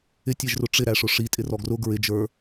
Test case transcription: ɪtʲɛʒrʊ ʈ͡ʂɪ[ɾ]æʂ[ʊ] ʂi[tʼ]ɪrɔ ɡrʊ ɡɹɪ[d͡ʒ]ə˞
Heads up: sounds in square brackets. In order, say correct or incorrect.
correct, correct, correct, correct

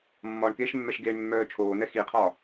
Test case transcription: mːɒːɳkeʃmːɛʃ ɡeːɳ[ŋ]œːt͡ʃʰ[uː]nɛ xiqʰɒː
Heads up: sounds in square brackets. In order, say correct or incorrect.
incorrect, incorrect

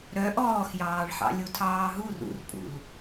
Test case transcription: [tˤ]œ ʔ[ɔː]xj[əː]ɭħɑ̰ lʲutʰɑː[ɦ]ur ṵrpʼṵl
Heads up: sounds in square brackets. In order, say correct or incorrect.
incorrect, correct, incorrect, correct

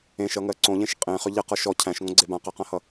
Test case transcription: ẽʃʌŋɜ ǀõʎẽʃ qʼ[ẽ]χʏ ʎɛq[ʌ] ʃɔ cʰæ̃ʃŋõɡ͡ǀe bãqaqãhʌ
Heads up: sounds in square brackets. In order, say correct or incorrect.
correct, correct

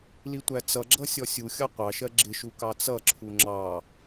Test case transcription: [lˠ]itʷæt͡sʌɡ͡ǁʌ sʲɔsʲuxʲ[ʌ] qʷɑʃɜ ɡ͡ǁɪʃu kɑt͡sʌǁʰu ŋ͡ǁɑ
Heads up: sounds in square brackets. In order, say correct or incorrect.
incorrect, incorrect

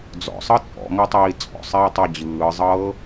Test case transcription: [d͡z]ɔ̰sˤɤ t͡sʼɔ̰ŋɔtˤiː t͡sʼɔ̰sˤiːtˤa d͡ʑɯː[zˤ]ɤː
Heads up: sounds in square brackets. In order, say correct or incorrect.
correct, correct

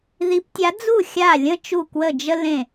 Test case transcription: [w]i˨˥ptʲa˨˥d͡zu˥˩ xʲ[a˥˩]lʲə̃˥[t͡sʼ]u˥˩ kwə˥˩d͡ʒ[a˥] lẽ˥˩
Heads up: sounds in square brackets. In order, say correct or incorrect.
incorrect, correct, incorrect, incorrect

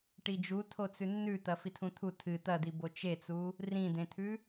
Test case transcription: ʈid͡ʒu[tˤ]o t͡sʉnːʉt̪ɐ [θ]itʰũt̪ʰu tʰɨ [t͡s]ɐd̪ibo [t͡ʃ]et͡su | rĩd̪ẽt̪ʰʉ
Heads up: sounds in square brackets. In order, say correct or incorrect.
incorrect, incorrect, incorrect, correct

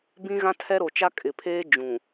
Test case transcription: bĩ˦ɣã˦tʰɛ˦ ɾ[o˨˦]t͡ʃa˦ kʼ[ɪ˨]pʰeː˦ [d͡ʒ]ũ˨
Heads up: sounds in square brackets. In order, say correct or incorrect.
incorrect, correct, correct

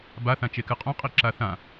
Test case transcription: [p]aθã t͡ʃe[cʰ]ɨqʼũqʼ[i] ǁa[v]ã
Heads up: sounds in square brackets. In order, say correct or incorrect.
incorrect, incorrect, correct, incorrect

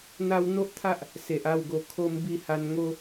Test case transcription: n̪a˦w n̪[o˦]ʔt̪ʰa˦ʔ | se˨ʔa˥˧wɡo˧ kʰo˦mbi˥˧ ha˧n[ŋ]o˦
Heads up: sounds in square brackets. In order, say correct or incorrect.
correct, correct

